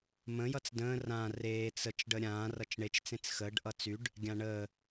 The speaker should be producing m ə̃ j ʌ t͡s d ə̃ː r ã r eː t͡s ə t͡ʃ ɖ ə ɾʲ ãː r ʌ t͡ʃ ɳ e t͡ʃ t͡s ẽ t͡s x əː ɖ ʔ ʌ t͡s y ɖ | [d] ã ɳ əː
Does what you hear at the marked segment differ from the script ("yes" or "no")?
yes